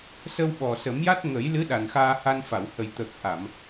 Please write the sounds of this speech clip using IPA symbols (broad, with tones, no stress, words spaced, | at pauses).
sə˧wɓɔ˨˩sə˨˩˦mja˦˥t̚ ŋə˨˩˦jlɨ˧˥ ɗa˨˩nxaː˧ha˧nfa˨˩˨w hə˨˩j t̪ə˨˩k̚ʔa˨˩˨m